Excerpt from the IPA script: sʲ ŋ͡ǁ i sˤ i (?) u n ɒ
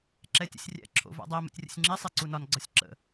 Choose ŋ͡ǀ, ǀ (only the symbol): ǀ